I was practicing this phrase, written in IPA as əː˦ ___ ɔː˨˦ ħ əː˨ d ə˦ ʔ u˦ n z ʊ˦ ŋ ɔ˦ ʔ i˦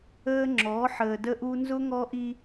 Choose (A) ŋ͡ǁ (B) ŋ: A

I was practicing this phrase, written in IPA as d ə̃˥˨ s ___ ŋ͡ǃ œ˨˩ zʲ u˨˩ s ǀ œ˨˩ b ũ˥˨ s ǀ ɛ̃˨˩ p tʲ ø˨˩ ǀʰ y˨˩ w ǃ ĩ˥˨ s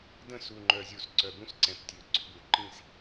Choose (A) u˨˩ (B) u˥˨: A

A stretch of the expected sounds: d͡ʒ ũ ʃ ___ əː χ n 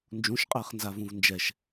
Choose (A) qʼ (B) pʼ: A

